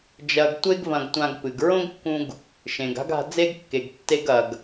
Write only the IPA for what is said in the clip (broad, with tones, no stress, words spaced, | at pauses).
d͡ʒɐ˧ɡ tʷe˥ɡvɐ̃˧ɡtʷã˧ɡ pɨ˩ɡ ɹõ˥ɡkːũ˧ɡ | ʃẽ˩ɡa̤˥ɡa̤˧ d͡ze˥ɡkːe˩ɡ tːe˧ɡɐ˩ɡ